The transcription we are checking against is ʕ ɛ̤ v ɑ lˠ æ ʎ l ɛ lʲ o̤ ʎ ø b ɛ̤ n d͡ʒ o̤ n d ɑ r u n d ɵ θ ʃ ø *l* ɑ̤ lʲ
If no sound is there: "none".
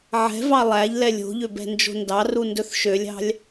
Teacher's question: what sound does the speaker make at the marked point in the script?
lʲ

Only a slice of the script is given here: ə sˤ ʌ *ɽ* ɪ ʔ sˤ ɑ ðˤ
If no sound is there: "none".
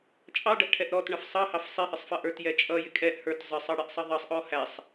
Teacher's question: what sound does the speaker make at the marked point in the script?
ɽ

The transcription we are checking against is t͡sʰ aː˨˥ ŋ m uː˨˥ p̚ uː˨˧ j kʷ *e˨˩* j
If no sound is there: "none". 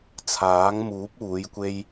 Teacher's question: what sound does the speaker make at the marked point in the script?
e˥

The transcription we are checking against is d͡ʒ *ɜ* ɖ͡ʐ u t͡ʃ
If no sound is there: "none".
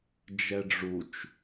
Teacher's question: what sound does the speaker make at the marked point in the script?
ɛ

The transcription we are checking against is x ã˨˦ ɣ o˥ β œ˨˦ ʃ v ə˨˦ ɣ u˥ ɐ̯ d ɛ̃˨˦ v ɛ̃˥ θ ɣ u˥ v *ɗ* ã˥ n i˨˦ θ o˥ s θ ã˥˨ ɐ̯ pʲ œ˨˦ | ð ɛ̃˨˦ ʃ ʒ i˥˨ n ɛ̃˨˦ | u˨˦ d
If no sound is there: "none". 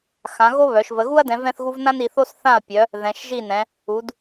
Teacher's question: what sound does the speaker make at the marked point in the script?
n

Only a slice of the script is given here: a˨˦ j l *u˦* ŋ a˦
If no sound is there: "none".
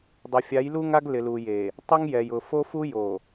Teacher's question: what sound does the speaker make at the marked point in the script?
u˦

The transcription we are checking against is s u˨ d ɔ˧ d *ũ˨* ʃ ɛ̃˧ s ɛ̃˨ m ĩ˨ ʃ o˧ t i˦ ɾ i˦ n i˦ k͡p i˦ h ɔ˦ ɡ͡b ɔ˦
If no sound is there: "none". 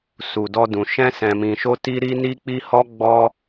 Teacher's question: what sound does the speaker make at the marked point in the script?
ũ˨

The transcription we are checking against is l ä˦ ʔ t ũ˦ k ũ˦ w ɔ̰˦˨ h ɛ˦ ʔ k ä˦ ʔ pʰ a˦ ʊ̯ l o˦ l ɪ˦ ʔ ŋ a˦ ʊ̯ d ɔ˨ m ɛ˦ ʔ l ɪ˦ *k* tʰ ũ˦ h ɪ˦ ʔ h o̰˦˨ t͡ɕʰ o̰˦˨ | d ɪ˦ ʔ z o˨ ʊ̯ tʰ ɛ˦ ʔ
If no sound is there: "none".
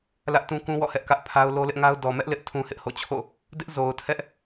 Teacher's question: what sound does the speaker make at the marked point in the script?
ʔ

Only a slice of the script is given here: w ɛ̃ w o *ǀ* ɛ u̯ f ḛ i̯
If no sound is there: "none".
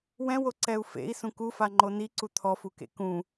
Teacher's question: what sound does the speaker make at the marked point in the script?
ǀ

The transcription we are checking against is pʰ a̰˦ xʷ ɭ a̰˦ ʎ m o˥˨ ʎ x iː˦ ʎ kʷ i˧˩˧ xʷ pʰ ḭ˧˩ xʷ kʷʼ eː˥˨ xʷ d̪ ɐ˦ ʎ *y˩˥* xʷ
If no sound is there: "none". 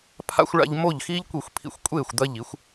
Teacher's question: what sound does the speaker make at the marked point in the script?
i˩˥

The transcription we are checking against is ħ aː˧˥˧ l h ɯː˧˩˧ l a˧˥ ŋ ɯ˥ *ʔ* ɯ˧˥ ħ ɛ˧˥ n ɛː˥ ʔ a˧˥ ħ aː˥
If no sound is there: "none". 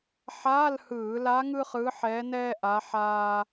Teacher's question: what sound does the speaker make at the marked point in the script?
χ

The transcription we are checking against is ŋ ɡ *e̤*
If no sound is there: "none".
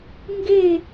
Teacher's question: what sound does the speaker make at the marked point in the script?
e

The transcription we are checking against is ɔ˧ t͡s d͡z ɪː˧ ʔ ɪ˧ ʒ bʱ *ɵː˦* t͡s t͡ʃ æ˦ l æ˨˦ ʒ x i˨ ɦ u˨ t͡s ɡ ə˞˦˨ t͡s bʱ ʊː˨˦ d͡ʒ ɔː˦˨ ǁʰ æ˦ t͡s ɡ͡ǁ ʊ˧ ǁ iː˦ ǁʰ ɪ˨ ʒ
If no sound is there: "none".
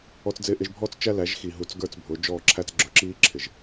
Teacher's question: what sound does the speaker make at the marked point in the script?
ɔː˦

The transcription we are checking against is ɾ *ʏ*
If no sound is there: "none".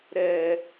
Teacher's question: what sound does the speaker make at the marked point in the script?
ɛ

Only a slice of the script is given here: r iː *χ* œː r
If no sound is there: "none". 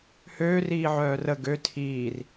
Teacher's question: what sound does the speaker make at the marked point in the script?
ʕ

